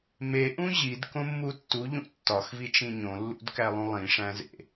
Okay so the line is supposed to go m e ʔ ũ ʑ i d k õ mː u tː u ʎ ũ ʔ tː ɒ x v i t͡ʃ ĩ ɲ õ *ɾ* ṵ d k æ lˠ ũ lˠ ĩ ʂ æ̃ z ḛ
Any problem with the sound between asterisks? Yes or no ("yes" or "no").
yes